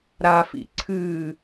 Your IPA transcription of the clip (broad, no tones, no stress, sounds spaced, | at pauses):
ɾ a f ḭ ǀʰ ɨ